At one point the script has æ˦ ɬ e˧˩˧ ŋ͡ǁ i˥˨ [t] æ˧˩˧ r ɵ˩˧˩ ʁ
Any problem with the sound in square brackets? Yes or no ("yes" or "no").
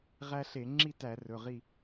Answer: no